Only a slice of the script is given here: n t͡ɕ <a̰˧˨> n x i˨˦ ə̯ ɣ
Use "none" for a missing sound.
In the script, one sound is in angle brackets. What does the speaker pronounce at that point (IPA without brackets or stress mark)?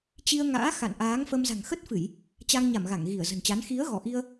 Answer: a˨˦